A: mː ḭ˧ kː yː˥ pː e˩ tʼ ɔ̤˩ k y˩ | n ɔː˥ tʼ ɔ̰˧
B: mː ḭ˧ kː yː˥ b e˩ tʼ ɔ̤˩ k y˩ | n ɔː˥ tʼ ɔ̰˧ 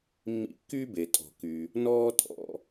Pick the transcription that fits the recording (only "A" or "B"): B